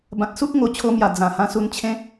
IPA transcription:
b ã˨ t̚ s u˦ k̚ ŋ o˨˩ t͡ɕʰ o˧ m j a˨˩ d͡z ã˨˩ h ã˧ s u˧ n t͡ɕʰ ẽ˦

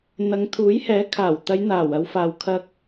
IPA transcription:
n̪ ɐ˨˧ ŋ t̪ʰ uː˨˥ j h ɛː˨˥ kʰ aː˨˩ w t̪ ɐ˨˧ j n̪ aː˨˩ w ɐ˨˧ w f aː˨ w kʰ ɐ˧ k̚

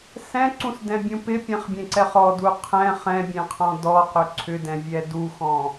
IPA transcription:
s ɛ̃ ǀ ũ s d ɛ̃ bʲ ũ p ɪ pʲ ɛ̃ χ bʲ ẽ ǀ ɛ χ ɔ d u qʰ ɛ̃ χ ɛ̃ bʲ ẽ qʰ ɔ̃ d ɔ q ʏ ǀʰ ʏ d ɛ̃ vʲ ɛ d u x ɔ̃

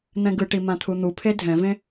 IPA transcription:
n̪ ɛ̃ ɡ ɯ ʈ i m ã t̪ʰ u n̪ u pʰ e dʱ ɛ̃ v ẽ

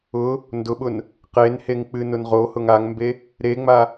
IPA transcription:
ʊ | n d ʊ ɓ ʊ n | q e n h e ŋ k͡p ɨ n ʊ n ʁ o h ʊ ŋ a ŋ m b e | ɾ e ŋ͡m a

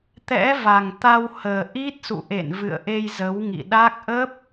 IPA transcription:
t̪ ɛ̰˧˥ v a˨˩ ŋ t̪ a˧ w h əː˨˩ ʔ i˦˥ t̚ s ṵ˧˨ ʔ ḛ˧˨ n v ɨ̰˧˨ ə̯ ʔ e˧ j z ə˨˦ w ŋ ḭ˧˨ ɗ a˦˥ k̚ ʔ ə˦˥ p̚

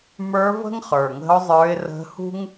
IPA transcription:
m ə˞˧˥ v ə̤˥ ŋ χ ə˞˨˩ ŋ ə̤˧˥ ʊ̯ zˤ ə˞˧˥ ɪ̯ r ə̤˧˥ h ṳ˥ ŋ

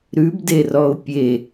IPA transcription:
ɾ ʉ b d e r ɔ ʊ̯ pʲ e

